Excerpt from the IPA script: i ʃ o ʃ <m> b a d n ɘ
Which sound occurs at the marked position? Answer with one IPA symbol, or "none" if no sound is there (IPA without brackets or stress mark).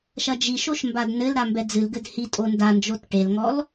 m